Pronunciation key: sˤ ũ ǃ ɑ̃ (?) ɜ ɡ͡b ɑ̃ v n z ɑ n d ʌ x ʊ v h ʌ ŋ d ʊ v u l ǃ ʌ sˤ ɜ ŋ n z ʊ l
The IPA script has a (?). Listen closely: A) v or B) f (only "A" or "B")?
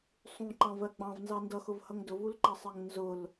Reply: A